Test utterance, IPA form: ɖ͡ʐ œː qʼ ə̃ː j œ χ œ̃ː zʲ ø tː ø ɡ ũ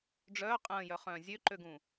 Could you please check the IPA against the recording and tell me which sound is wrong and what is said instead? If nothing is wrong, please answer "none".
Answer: tː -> ǃ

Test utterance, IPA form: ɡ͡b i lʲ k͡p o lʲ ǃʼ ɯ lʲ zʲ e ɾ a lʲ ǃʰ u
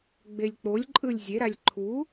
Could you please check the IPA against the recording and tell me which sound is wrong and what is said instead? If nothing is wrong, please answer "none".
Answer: i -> e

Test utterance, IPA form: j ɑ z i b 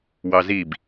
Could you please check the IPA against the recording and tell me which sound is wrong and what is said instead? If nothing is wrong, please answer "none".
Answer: j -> w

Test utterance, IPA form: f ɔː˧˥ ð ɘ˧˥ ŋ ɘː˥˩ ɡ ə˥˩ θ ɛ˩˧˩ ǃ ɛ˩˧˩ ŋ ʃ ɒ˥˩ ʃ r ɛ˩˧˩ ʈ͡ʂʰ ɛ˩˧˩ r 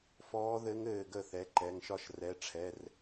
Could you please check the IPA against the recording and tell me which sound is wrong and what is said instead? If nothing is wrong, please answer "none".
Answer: none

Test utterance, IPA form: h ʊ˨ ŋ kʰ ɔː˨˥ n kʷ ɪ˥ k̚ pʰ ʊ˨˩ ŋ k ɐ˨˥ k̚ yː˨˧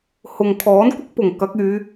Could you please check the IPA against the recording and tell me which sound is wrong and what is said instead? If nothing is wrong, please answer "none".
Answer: pʰ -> p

